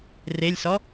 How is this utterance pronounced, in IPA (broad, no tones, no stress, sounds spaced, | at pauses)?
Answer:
r e lʲ s ɔ